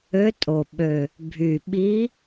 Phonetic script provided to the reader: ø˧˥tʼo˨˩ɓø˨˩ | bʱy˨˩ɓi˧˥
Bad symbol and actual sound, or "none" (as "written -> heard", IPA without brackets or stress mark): none